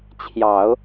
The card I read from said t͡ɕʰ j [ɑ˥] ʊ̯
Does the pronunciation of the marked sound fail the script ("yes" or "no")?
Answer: yes